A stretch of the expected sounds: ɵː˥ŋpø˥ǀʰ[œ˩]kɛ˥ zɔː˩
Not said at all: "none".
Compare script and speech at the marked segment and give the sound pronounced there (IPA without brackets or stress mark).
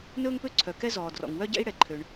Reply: œ˩